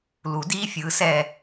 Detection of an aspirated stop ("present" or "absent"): absent